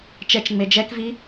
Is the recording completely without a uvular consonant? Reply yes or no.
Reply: yes